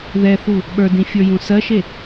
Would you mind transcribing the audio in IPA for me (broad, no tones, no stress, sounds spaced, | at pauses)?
ð ɛ θ u | ɓ ə˞ d ĩ fʲ ə˞ j ũ s ɜ ʃ e